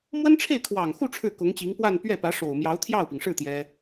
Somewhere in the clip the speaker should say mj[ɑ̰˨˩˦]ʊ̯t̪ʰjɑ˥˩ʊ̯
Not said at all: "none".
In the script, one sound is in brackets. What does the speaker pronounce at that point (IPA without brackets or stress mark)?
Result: ɑ˧˥